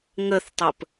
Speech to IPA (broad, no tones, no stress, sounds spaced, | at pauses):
ŋ ə θ tˤ ə p